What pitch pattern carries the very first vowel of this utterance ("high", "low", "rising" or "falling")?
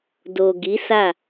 low